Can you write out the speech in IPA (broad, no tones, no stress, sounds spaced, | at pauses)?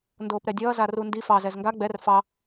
n d oː p ɾ ɛ dʲ ʌː z a r u n d i f ɑ z ɛ z ŋ ɡ a ɡ͡b ɛ r f ɑ